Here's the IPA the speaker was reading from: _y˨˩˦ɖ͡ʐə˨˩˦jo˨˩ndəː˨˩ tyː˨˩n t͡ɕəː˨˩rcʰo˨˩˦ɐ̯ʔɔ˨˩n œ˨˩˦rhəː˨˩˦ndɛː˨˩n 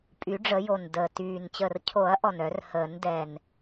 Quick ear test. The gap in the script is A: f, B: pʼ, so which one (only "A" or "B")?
B